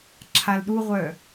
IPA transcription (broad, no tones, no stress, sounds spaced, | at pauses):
ǁʰ a l ɗ u ʁʷ œː